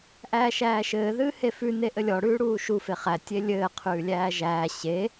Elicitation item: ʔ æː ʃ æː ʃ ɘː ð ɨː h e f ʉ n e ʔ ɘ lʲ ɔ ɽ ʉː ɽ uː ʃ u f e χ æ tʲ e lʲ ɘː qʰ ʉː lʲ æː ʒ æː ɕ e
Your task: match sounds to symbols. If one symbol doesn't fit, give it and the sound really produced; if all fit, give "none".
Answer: none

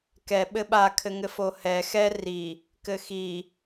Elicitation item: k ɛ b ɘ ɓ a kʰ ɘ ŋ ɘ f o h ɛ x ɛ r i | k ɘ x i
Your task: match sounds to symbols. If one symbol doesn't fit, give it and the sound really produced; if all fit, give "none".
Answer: b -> ɓ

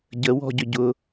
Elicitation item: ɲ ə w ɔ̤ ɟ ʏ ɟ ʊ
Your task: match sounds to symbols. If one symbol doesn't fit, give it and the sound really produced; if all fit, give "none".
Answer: ɲ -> ɟ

